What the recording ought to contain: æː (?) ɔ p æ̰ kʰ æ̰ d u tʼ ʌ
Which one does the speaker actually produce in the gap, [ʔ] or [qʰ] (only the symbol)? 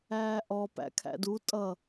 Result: ʔ